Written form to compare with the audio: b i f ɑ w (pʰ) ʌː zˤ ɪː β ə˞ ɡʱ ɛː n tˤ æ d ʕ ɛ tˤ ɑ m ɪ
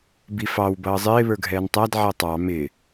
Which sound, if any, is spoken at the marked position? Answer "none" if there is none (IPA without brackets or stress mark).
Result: b